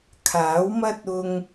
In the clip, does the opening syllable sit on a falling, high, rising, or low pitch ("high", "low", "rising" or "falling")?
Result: rising